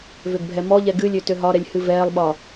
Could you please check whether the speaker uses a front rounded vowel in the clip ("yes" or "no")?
yes